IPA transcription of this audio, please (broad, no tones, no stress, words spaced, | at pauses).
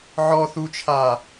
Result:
ʕɔ θut͡ʃʰa